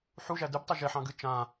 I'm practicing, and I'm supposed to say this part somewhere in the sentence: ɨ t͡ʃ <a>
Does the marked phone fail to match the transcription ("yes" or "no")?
yes